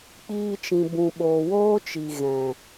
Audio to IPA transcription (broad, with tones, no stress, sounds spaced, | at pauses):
k͡p iː˧ t͡ʃ ĩ˨ b ũ˨ ɓ oː˨ w oː˦ t͡ʃ i˨ ɣ ɛ̃˨